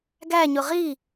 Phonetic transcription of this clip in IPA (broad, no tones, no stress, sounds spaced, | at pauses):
ɡ æ ɲ ʊ ʁ i